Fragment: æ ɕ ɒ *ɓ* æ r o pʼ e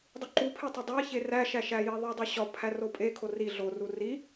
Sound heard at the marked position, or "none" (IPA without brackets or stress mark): pʰ